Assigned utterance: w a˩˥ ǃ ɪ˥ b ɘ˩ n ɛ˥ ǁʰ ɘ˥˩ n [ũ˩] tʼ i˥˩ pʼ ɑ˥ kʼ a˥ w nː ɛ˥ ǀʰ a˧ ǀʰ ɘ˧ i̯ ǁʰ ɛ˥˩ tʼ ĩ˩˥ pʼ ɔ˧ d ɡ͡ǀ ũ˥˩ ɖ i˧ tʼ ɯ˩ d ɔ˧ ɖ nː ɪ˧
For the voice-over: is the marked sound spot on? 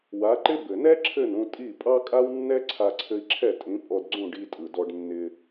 no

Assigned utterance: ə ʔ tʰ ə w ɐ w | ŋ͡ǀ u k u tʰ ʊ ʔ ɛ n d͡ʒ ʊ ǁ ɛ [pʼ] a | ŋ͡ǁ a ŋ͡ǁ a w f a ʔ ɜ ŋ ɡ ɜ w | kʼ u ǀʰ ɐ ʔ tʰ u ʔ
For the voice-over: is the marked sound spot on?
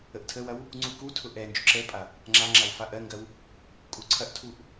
yes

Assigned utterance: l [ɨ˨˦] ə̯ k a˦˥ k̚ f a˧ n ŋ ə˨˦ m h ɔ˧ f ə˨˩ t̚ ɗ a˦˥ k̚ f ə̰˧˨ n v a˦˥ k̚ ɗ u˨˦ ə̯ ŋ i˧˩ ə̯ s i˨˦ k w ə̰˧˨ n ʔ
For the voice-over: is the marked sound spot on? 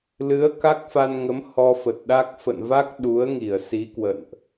yes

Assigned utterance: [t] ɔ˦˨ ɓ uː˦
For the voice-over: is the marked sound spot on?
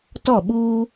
yes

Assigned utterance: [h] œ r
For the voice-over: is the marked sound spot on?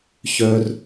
no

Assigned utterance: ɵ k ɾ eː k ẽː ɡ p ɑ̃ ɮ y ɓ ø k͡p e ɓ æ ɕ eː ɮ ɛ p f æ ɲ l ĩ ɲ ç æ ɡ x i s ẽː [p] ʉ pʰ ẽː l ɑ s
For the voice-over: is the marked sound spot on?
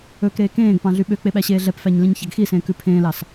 no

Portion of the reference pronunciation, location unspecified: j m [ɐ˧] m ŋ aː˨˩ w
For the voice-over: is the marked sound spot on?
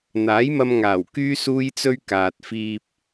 yes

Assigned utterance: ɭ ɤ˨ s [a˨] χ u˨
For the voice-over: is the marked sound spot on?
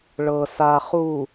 yes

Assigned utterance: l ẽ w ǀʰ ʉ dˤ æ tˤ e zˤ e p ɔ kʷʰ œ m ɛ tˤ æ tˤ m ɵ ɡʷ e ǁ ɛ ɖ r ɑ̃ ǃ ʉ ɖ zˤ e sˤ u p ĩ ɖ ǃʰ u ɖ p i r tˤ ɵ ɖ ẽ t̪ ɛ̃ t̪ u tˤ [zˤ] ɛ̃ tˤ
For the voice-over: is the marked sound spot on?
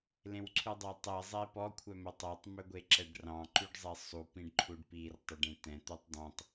no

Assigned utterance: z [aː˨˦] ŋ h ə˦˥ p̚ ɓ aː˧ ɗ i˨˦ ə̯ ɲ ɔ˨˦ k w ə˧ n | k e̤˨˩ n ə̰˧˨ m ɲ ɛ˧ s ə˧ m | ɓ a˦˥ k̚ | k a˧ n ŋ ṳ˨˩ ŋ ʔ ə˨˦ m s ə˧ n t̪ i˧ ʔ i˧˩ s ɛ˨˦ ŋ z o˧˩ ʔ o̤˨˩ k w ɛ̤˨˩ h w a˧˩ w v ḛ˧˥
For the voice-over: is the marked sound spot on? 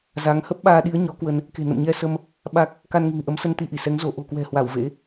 no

